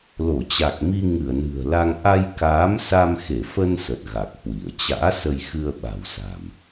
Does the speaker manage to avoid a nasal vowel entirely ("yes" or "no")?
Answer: yes